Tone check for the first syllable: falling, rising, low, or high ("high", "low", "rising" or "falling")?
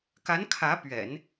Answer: rising